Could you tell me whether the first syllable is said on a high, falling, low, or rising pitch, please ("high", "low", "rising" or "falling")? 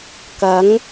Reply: rising